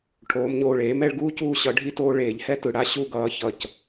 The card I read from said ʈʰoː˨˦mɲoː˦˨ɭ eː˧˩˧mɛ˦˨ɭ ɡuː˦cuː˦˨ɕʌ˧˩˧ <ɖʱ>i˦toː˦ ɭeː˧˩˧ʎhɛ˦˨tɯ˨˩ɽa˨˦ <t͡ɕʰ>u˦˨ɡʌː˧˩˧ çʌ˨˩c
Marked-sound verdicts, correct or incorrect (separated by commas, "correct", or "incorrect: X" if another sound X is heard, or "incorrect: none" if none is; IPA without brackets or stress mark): correct, incorrect: ɕ